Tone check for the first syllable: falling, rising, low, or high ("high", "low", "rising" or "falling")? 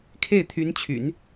falling